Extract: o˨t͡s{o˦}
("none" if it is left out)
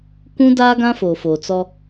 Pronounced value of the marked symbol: ɔ˦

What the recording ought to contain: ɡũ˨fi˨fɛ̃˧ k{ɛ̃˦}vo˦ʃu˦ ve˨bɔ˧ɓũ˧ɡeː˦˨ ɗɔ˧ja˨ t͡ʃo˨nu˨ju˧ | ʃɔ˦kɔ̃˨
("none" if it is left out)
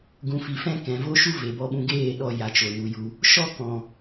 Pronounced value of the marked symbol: ɛ̃˨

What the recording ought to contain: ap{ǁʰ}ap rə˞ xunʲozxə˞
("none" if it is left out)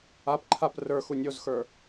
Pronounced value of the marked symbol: ǃʰ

